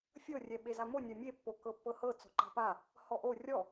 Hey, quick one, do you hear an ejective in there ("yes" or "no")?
no